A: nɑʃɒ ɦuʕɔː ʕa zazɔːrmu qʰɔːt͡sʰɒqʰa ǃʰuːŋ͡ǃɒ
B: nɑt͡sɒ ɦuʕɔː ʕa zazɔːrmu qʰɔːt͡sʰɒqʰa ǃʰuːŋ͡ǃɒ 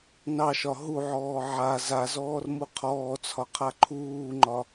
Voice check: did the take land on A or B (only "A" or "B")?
A